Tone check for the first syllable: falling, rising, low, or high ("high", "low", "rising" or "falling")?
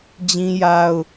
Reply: high